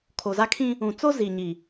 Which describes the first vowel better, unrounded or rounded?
rounded